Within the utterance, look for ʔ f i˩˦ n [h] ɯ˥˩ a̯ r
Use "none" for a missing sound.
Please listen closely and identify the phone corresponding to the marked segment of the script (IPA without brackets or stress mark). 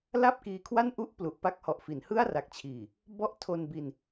h